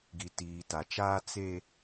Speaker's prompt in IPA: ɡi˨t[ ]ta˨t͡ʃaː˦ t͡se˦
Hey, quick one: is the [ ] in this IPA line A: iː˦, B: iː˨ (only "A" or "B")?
B